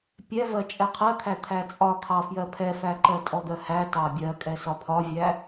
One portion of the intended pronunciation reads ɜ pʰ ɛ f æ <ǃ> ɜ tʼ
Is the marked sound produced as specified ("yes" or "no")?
yes